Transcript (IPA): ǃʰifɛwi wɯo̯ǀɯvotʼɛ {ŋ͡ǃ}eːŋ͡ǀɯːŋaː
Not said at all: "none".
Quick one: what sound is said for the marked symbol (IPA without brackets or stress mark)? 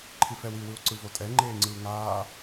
ŋ͡ǃ